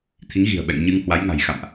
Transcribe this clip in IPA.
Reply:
t̪ʰ i˨˦ ŋ ɣ i̤˨˩ ə̯ ɓ ɛ̰˧˨ ŋ ɲ ɨ˧ ŋ h w a˨˦ j ŋ a̤˨˩ j x a̰˧˨ m ʔ

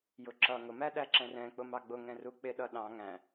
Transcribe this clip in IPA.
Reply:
j ʊ ǁ ʌ ŋ ʊ m æ ɗ æ ǁ ɛ̃ r ɛ̃ k͡p ʊ m ɑ ɡ͡b ʊ ŋ ɛ̃ r u k͡p ɪ ɗ ʌ ɗ ɑ̃ ŋ æ̃

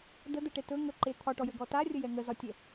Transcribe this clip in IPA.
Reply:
d ə d̪ ɛ ʈ e t ɵ ŋ ɵ ǃ e t̪ʰ ɒ ʈ ɔ j ə ɡ ɔ t a rʲ ə j ɛ ŋ ə z ɒ tʲ ɛ

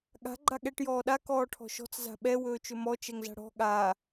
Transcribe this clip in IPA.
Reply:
ɠ a̤ ɡ͡ǃ a ɠ ɛ ʈ j ɔː ɗ a k ɔː ʈʰ ɔ̤ ʃ ɔ̤ t͡s z a̤ ɓ ɛ w ɵː t͡ʃ ɵ m ɔ t͡ʃ ɛ ŋ z a̤ ɽ ɔ̤ ɠ a

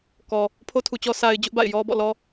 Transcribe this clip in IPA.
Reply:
k ɔ˨ | pʰ o˦ tʰ u˨ t͡ɕ ɔ˦ sʰ a˦ ɪ̯ d͡ʑ ʊ˦ ʔ b a̰˦˨ ɪ̯ j ɔ˦ b ɔ̰˦˨ l ɔ˦

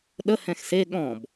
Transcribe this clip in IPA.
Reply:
ɗ ə h ɛ̃ x s e ɠ ɔ̃ b

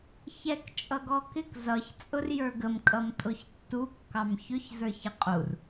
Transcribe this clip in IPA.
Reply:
ç ɛ k t͡ʃʼ ʌ ɡ ɔ k ɪ k z ʌ ç t͡sʼ ʊ r j ə˞ ɡ ə m kʼ ʌ m tʼ ʊ ç tː u kː ɑ m ç ʊ ç z ə˞ ç ɪ qʼ u r

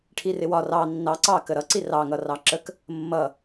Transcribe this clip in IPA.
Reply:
ʈʰ i r ɪ w ɒ r ɑ nː ɑ ǀ ɑ k ə ɾ ʌ ǀ i r ɑ ŋ ʌ r ɑ ǁ ə k | mː ʌ

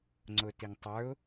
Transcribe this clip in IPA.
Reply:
ŋ͡ǀ ʊ t i ŋ tˤ ə˞ ʊ̯

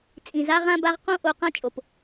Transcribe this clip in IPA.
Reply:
t͡sʼ ĩ˨ z a˦ ʁ ã˦ b a˦ ʁ q õ˦ ʔ o˧ q ã˦ t͡ʃʼ o˨ p

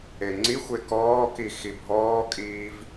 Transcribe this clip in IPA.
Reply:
e ŋ͡ǀ i xʷ e k ɔː k i x i bʱ ɔː kʼ iː v

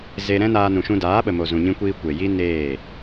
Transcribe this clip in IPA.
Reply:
z e˧ ɾ ɛ̃˦ n aː˧ n ũ˨ ʃ ũ˧ d aː˨˦ ɓ ə˨ m o˨ z ũ˨ ɲ ĩ˧ kʷ iː˧ kʷ e˨ j i˦ n eː˦˨

